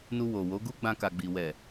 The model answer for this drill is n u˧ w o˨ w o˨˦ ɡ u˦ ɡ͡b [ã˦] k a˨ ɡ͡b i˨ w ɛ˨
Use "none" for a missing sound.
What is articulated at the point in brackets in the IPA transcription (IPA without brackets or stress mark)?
ã˧